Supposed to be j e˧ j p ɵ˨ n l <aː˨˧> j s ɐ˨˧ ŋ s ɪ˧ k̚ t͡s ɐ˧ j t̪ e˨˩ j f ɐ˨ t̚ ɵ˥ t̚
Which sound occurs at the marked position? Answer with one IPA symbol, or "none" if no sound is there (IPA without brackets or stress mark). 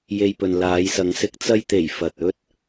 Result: aː˨˧